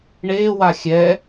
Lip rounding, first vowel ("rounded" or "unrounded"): unrounded